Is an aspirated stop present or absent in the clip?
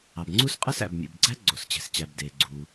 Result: absent